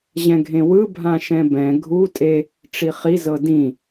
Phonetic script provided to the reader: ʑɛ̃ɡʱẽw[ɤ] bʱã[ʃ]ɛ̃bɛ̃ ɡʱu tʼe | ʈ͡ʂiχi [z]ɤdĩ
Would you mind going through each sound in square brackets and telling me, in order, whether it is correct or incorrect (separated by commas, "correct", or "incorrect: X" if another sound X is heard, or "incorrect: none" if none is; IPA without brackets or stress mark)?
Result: incorrect: ɯ, correct, correct